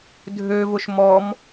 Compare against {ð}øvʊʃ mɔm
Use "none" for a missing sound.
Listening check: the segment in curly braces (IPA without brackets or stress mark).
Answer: dʱ